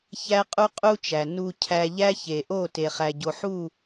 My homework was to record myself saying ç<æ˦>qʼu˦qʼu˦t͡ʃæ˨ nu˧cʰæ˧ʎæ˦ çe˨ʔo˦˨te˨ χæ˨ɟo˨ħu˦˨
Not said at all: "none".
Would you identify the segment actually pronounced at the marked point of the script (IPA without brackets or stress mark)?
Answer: æ˦